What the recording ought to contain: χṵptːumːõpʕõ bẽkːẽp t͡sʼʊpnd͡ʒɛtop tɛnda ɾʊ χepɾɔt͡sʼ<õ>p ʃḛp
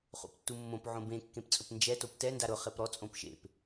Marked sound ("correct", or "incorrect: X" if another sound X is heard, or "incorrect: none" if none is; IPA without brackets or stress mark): correct